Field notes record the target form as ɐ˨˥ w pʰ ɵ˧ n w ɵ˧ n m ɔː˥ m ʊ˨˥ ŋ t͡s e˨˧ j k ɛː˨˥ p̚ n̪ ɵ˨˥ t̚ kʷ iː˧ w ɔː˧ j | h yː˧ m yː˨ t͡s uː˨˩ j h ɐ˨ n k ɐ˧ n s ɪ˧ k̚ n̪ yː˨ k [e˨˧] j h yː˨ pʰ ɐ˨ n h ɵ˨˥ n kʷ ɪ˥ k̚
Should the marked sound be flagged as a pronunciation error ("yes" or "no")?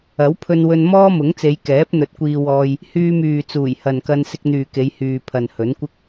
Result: no